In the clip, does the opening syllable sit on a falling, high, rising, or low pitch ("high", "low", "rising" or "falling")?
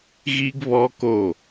high